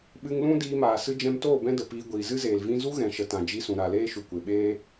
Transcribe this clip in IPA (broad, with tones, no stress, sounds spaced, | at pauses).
ɓ ɨ˧ ŋ l ũ˦ d iː˧ m aː˨ s ɨ˧ d͡ʒ ɛ̃˧ m t oː˦˨ b ɛ̃˦ d ə˨ p iː˧ ɡʷ iː˨ z ɨ˦ z eː˨ l v ĩ˧ z u˦ ɣ ɛ̃˨ ʃ ə˨ t ã˨ d͡ʒ i˧ s ũ˨ ɾ a˨ l eː˦ ʃ u˨ kʷ e˨ ɓ eː˦